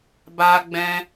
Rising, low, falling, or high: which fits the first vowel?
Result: high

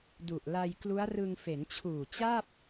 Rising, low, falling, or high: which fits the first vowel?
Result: low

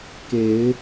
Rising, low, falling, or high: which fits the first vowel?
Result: rising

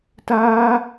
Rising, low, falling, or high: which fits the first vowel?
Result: high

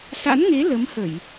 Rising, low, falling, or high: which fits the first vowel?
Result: rising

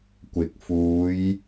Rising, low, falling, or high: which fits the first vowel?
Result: rising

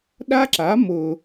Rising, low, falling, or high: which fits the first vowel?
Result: high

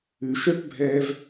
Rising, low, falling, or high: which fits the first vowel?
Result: low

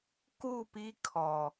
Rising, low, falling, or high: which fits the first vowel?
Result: falling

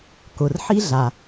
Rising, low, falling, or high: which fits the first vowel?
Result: low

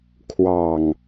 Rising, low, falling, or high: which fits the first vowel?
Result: low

